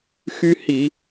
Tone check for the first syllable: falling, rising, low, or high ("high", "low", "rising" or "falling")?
high